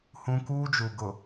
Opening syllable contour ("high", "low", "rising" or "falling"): high